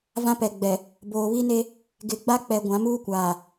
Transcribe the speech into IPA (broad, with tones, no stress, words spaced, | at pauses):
vã˦pɛ˨ ɡ͡bɛ˨ | boː˨βi˦ne˦ | ɡɪ˨ɡ͡ba˦k͡pɛ˨ ɡʷã˨˦muː˦kʷaː˨